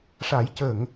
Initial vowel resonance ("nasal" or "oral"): oral